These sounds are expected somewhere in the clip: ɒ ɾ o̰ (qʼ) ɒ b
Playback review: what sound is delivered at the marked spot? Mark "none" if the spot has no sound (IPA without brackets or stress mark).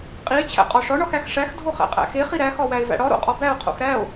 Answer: qʼ